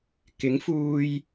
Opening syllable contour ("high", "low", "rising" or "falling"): rising